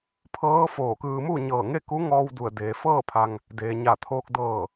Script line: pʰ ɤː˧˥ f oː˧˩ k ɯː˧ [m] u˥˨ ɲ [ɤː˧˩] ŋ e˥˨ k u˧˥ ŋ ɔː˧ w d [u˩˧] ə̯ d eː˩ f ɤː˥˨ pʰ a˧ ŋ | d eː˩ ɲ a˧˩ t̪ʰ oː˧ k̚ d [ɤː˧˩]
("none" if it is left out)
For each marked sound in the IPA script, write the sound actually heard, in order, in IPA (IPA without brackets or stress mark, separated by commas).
m, ɤː˧˩, u˧˩, ɤː˧˩